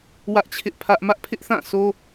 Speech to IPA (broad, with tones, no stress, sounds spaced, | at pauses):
w ä˦ ʔ t͡ɕʰ ɪ˦ ʔ pʰ ä˦ ʔ m ä˦ ʔ pʰ ɪ˦ ʔ θ ã˦˨ sʰ o˦